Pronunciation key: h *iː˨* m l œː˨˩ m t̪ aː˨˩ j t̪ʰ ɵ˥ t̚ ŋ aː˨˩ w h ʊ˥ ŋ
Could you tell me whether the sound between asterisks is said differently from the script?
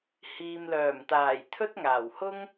no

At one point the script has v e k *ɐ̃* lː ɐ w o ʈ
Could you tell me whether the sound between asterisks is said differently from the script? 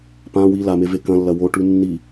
no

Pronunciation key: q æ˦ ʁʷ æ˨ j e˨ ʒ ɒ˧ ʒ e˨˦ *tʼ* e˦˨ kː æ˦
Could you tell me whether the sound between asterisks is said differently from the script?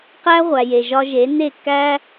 yes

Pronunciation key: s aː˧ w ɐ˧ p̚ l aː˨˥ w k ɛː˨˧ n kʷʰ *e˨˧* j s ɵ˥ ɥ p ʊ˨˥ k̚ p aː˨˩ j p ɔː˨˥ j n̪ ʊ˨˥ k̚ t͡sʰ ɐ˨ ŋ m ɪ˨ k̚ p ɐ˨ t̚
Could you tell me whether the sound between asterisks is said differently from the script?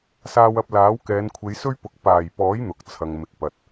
no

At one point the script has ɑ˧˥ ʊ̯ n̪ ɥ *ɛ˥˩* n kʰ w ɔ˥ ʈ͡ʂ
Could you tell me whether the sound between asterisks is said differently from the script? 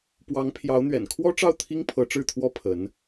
yes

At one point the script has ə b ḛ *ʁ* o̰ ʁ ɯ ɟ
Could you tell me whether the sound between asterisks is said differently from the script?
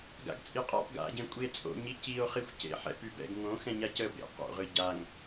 yes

